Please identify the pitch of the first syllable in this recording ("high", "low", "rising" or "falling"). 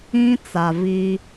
high